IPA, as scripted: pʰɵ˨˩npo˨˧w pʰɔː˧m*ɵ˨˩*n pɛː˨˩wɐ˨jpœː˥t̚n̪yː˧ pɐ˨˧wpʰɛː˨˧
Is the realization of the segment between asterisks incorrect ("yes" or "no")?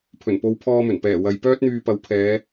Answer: no